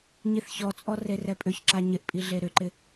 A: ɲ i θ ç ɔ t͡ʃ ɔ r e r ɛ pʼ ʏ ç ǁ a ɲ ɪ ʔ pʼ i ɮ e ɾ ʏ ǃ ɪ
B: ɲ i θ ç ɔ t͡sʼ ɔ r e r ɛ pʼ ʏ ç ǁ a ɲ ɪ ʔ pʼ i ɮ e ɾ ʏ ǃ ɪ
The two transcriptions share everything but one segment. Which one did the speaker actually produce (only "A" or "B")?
B